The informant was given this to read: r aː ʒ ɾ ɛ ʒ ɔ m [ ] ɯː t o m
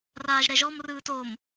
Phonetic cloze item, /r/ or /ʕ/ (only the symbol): r